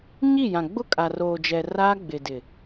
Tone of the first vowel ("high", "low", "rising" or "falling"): falling